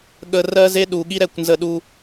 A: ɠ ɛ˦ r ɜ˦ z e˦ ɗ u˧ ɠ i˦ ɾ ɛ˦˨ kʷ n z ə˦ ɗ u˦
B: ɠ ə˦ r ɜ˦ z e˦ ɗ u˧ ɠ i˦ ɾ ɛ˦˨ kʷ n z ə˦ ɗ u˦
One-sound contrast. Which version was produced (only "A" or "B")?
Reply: B